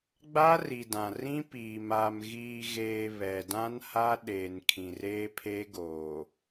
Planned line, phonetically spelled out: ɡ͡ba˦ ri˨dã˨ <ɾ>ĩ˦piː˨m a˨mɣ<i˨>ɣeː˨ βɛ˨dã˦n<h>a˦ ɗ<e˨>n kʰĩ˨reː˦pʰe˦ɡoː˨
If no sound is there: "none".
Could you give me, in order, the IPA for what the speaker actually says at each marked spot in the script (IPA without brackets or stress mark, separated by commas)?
r, iː˨, h, e˨